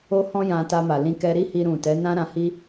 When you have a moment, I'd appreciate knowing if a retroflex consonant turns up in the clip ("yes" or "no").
no